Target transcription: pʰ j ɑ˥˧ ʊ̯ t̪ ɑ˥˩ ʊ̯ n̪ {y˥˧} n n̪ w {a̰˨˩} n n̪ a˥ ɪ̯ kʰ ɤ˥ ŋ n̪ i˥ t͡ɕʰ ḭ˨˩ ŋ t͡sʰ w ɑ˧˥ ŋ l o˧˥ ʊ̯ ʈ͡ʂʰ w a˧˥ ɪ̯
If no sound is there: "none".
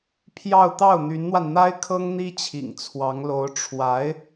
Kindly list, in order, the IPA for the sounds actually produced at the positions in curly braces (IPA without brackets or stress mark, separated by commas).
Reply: y˧˥, a˧